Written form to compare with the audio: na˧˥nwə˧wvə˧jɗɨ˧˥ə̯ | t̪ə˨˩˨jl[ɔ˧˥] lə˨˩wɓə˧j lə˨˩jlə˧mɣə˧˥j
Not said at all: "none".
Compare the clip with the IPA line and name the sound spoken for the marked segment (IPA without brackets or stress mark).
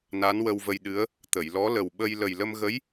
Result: ɔ˧˥